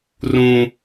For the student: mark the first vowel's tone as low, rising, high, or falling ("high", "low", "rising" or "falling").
high